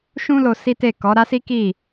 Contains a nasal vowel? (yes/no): yes